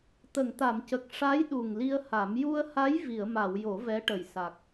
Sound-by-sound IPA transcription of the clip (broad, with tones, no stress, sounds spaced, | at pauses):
t̪ ə˨˩˨ ŋ t̪ a˨˩˨ m c ə˨˩ k̚ ʂ a˧˥ j ɗ u˨˩ ŋ l i˧ ə̯ h a˨˩˦ m j u˧ ə̯ h a˧˥ j v i˨˩˨ ə̯ m a˨˩˨ w j o˨˩˦ v ɛ˧˥ ʈ ə˨˩ j s a˨˩ k̚